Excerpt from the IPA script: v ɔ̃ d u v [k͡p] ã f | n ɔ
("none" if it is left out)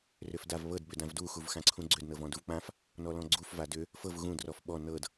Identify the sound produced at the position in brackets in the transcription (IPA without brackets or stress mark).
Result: k͡p